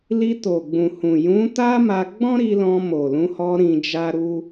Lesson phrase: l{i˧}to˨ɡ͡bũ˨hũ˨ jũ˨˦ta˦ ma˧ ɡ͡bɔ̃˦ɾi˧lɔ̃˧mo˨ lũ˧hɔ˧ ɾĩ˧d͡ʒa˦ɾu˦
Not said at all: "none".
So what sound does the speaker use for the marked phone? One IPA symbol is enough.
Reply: i˧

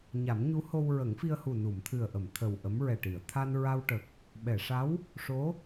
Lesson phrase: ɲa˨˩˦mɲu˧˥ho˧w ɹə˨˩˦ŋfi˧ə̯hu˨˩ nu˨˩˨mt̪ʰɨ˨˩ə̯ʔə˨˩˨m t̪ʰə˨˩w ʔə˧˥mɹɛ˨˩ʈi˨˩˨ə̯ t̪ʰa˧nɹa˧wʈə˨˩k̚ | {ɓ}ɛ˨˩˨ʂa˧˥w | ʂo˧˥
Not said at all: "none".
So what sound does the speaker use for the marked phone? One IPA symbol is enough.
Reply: ɓ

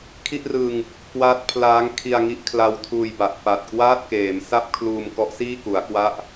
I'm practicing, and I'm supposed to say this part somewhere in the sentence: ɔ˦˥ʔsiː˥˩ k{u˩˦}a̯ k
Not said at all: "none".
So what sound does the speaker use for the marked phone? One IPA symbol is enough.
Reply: u˩˦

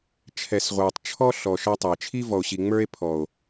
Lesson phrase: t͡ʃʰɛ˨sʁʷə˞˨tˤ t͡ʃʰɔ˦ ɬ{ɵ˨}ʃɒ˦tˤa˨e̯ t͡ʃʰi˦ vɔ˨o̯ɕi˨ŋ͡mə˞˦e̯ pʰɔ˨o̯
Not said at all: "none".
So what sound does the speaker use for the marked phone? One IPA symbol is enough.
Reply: ɔ˨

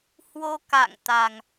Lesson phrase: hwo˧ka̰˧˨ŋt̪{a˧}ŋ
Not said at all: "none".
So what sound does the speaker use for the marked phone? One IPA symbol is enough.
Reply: a˨˩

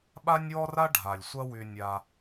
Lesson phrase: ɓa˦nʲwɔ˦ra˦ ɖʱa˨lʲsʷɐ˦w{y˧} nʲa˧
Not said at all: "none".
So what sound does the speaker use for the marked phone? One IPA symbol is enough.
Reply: y˧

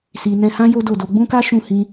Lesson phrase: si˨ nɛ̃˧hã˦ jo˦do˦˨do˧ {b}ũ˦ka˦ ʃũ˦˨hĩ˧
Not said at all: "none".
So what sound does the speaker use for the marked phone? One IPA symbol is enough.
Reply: ɡ͡b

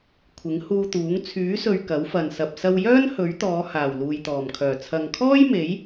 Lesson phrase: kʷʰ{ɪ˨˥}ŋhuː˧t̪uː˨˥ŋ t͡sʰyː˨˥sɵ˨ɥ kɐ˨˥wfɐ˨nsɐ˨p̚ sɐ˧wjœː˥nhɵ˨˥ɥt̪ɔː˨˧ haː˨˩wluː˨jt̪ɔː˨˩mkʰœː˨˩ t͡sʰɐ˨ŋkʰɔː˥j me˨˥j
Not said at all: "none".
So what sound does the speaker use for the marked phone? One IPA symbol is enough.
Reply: ɪ˨˥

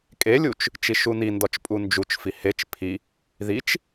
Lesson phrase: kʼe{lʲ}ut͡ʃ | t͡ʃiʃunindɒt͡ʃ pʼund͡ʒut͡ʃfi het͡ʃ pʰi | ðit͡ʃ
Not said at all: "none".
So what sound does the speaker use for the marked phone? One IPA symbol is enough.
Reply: lʲ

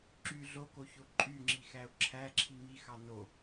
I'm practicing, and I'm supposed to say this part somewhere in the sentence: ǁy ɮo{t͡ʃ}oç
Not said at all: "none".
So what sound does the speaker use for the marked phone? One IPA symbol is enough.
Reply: k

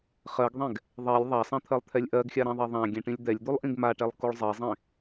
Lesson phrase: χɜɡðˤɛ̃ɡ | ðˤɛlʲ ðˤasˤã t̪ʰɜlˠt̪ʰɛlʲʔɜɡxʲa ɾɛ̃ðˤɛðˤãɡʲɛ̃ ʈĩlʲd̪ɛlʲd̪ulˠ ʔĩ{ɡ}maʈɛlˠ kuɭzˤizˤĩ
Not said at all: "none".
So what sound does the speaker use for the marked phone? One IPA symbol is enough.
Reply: ɡ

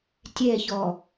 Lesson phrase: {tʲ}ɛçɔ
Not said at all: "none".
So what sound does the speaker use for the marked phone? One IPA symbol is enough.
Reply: tʲ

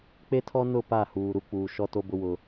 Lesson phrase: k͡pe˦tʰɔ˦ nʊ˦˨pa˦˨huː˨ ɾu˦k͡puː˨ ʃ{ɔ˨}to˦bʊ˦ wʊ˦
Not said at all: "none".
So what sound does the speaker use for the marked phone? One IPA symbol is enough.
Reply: ɔ˦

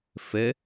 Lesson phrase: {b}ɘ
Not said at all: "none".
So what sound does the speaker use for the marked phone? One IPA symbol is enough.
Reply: f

